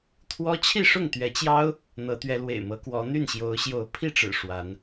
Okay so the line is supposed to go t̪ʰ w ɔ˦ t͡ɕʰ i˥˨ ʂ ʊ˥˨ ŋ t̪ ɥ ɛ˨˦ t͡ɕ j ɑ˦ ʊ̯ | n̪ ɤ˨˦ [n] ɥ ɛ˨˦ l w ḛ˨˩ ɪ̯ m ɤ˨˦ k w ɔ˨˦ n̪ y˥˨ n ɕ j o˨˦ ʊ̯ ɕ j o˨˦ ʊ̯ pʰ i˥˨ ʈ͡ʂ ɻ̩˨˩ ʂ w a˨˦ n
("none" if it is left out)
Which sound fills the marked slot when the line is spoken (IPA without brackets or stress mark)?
t̪